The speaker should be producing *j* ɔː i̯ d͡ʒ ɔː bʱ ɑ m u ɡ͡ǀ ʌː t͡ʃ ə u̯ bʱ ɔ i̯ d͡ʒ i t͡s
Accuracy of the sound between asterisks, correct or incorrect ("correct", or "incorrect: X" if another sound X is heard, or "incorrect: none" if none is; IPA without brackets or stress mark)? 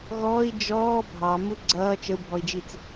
incorrect: ɣ